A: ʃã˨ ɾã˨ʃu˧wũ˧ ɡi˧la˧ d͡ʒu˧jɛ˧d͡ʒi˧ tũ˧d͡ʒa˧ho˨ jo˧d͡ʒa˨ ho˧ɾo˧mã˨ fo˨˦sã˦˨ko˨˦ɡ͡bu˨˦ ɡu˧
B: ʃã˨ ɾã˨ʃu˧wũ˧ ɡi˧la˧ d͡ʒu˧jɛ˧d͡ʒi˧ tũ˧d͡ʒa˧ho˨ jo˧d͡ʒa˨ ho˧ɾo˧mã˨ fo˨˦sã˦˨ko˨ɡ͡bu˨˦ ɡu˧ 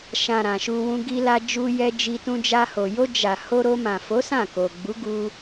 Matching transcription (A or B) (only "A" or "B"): B